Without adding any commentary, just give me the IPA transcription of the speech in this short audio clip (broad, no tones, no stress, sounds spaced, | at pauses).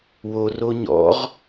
w o r o ɲ ɔ̰ ʁ